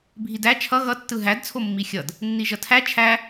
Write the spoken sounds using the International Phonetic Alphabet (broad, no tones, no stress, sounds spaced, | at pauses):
bʱ i d æ t͡ʃʰ ʌ ɣ ʌ tː ɯ ɦ æ d t͡sʰ o mː i xʲ ʌ d | nː i ʒ ʌ tʰ æ t͡ʃʰ æ